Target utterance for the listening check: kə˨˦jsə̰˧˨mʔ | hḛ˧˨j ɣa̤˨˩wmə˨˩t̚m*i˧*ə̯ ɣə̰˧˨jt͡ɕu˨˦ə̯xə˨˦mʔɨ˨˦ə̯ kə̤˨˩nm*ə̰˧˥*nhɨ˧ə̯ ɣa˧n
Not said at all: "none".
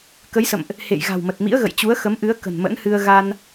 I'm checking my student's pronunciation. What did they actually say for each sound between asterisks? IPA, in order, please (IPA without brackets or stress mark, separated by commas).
ḭ˧˥, ə̰˧˥